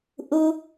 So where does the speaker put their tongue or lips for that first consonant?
throat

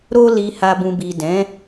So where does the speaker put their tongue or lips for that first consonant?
tongue tip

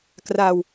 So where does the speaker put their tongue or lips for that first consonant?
velum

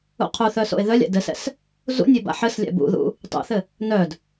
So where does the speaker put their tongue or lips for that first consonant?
uvula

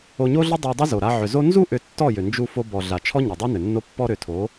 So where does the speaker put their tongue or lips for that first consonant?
palate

